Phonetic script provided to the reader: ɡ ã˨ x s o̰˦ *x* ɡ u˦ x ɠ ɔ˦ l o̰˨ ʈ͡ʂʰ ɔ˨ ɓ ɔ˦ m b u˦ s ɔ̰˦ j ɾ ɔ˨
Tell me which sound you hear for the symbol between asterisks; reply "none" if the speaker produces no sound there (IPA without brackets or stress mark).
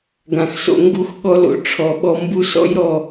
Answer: ŋ